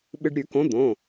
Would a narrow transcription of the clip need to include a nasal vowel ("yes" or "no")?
yes